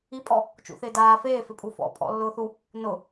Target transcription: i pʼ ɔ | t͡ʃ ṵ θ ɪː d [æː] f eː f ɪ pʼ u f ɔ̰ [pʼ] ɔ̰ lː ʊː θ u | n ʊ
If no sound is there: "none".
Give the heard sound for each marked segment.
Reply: aː, pʼ

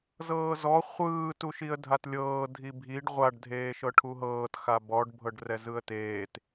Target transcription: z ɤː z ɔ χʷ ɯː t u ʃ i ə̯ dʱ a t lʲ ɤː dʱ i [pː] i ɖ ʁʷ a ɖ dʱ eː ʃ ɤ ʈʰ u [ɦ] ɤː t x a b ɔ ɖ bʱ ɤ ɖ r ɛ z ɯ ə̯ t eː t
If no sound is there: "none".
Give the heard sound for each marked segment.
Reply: bʱ, ɦ

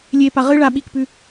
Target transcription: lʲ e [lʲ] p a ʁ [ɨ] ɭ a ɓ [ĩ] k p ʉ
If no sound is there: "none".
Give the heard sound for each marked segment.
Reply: none, ɨ, i

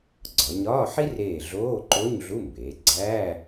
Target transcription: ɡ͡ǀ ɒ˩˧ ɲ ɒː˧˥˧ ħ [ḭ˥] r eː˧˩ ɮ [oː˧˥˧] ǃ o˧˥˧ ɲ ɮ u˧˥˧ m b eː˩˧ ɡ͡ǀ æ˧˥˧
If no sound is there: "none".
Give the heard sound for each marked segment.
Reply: i˥, oː˧˥˧

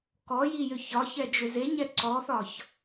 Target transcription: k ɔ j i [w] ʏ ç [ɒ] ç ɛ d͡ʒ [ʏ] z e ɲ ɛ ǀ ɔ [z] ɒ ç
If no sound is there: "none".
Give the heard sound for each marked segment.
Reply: j, ɒ, ʏ, θ

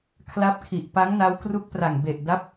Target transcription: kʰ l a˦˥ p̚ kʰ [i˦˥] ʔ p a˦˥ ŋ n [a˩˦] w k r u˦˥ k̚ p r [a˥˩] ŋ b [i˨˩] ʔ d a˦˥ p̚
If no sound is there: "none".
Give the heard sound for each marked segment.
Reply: i˨˩, a˦˥, a˨˩, e˨˩

